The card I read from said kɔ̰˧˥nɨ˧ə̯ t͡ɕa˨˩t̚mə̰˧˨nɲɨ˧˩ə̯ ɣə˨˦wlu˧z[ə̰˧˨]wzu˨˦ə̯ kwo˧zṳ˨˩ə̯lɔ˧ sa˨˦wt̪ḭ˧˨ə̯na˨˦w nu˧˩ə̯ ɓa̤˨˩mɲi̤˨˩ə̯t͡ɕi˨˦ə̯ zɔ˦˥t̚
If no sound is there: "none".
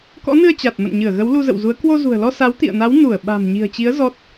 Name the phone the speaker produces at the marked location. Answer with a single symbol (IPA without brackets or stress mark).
ə̰˧˨